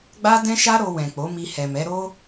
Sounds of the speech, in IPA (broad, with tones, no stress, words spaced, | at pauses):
ɡ͡ba˦dɛ̃˦ʃa˦ ɾo˧ wɛ̃˨k͡po˨˦mi˧ hɛ˨mɛ˨˦ ɾo˦